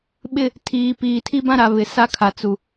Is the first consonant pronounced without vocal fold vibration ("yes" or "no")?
no